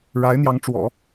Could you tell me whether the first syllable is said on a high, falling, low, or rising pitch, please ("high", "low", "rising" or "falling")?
rising